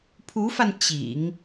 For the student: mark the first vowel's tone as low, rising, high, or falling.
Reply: rising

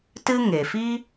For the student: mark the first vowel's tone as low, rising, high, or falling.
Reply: high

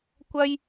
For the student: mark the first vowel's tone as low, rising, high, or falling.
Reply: high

